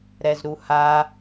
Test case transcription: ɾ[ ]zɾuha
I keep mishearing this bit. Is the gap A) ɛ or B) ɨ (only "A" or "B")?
A